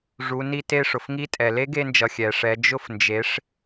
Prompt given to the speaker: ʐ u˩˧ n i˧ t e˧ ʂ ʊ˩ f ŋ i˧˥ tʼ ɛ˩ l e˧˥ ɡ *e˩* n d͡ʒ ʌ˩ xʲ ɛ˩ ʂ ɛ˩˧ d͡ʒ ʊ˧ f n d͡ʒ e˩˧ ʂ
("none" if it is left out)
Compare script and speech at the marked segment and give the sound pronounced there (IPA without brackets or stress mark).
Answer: e˧